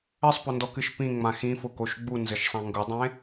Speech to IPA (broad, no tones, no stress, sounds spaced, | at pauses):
ɘ sˤ p ʊ n d ɔ k ɨ ʃ p ĩ ŋ͡m ã x ĩ f ʊ k o ʃ ɡ͡b u n z ɘ ʃ sˤ ã ŋ ɡ ʊ dˤ ẽ